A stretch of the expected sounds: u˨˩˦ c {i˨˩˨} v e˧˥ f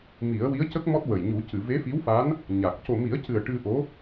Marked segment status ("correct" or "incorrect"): incorrect